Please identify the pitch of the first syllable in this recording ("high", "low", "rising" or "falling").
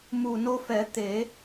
low